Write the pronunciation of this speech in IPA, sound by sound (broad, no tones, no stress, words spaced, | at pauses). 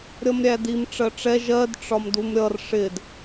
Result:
ɾʲʌmɾʲædim ʈ͡ʂɜʈ͡ʂɛ ʒɜd ʈ͡ʂɒmdumɾʲʌr ʂɪd